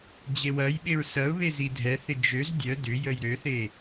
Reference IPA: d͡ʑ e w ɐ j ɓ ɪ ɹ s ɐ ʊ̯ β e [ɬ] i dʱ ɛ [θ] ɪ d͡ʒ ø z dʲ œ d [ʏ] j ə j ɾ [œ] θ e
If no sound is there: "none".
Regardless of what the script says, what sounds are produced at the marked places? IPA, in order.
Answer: z, θ, ʏ, ø

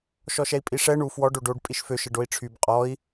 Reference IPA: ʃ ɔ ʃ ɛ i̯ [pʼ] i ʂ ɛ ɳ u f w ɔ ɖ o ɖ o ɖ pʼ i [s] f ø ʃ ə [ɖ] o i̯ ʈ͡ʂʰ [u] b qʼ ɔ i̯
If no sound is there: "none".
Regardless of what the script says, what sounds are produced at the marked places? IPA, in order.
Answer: pʼ, ʃ, ɖ, y

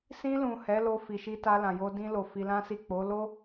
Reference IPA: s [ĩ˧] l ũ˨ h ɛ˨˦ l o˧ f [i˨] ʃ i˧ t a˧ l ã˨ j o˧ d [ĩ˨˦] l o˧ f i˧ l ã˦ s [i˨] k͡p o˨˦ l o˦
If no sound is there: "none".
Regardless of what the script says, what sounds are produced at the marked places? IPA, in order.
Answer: ĩ˧, i˨, ĩ˧, i˦˨

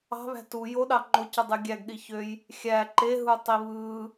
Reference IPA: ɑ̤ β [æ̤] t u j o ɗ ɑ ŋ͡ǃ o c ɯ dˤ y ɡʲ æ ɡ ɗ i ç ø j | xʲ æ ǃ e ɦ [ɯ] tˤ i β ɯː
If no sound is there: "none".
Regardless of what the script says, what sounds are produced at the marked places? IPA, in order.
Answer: æ̤, u

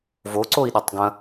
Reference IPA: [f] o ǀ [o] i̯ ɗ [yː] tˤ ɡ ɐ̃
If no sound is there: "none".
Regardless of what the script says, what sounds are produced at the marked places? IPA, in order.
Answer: v, o, y

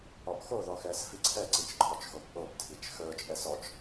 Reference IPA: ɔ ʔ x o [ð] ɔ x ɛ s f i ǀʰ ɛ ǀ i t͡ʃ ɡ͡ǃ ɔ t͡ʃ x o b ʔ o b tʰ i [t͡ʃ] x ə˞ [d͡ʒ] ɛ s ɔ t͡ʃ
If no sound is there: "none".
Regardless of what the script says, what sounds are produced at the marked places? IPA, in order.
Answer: ð, t͡ʃ, t͡ʃʼ

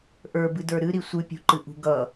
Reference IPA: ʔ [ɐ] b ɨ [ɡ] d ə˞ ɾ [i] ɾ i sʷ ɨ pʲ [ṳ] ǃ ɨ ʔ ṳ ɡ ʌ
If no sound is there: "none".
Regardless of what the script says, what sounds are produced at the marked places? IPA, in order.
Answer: ə˞, none, ɨ, ṳ

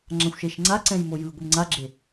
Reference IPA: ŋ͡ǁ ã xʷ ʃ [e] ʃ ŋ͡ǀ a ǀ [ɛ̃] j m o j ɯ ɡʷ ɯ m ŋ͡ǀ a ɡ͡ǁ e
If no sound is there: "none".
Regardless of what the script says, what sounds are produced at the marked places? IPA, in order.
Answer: e, ɛ̃

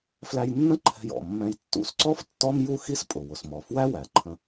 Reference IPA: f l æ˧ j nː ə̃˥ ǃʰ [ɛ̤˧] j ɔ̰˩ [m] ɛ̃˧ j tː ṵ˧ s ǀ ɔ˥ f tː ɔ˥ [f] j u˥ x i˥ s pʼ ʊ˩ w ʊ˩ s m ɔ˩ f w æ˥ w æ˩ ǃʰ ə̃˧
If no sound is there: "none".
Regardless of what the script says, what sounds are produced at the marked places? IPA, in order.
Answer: ɛ̤˧, mː, m

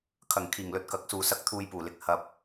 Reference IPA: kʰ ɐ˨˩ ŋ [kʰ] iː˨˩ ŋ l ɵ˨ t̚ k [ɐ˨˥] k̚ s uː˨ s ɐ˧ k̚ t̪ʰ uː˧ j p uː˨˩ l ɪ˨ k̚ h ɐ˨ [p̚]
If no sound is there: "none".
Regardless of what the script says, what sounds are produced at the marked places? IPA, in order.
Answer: kʰ, ɐ˨˥, p̚

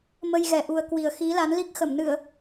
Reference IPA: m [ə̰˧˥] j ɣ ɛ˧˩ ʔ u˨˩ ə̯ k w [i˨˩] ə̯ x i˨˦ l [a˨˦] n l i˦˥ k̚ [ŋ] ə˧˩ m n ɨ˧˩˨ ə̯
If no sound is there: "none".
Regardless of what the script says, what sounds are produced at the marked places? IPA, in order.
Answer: ə˧, i˨˩, a˨˦, x

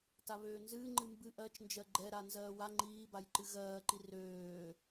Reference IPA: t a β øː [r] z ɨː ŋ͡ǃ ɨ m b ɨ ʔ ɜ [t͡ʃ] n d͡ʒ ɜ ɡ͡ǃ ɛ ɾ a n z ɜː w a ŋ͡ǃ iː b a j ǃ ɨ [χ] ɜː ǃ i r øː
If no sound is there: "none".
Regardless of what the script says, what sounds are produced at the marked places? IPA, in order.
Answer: n, t͡ʃ, ɣ

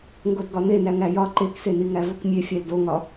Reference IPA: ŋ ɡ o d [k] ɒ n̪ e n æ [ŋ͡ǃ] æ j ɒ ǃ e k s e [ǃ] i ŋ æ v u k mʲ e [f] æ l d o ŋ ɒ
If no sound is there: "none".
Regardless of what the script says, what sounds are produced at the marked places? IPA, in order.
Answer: ɡ, ŋ, n, fʲ

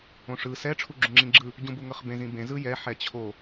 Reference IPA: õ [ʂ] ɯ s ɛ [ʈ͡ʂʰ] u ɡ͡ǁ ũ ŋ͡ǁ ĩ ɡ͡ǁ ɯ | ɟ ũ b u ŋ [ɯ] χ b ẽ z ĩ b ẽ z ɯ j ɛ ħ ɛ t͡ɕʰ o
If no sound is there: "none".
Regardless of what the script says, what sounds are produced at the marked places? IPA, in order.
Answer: ʂ, ʈ͡ʂʰ, ɤ

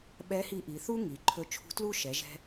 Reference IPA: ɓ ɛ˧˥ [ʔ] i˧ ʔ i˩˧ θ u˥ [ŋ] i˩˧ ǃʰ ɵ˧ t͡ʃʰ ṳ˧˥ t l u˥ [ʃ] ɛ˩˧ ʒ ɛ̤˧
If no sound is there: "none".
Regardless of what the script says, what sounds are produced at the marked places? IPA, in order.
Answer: h, ŋ, ʃ

